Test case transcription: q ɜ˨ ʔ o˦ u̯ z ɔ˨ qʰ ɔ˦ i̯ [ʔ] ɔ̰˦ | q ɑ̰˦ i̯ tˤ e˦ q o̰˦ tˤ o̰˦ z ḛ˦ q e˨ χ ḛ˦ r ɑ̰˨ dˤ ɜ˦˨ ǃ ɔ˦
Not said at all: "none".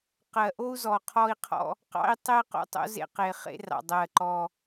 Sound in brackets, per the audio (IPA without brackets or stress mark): qʰ